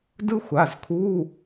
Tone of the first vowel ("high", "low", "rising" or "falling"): high